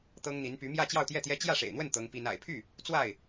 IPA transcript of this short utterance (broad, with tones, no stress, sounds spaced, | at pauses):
t̪ ɤ˥ ŋ n̪ i˧˥ n p y˧˥ m j ä˥˧ t͡ɕ j ɑ˥˧ ʊ̯ t̪ j ɛ˥˩ t̪ j ɛ˥ t͡ɕ j ä˥˩ ʂ ḛ˨˩ ɪ̯ n̪ w ə˥˩ n t̪ ɤ˥ ŋ p i˥ n a̰˨˩ ɪ̯ pʰ y˥˩ | t͡s w a˥˩ ɪ̯